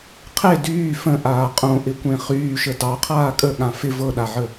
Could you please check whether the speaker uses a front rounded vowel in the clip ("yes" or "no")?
yes